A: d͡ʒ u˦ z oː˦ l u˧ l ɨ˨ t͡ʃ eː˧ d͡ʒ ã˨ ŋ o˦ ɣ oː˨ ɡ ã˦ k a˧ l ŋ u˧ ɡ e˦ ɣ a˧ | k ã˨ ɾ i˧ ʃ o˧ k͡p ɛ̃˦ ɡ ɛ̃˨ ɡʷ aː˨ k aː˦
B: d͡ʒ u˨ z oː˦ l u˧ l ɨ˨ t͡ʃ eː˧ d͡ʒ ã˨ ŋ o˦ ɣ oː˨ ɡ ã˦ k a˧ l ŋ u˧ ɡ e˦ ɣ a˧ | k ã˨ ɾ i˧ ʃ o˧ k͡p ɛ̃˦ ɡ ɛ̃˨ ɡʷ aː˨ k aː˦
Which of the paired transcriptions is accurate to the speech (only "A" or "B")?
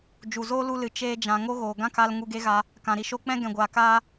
B